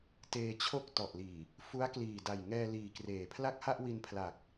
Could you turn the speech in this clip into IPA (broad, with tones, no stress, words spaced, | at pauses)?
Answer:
teː˧t͡ɕʰo˥˩k̚tɔ˨˩ʔliː˨˩ | fu˦˥a̯kliː˨˩da˨˩j ŋɛː˧liː˨˩kreː˩˦pʰla˥˩k̚ ha˥˩ʔwi˧npʰla˨˩k̚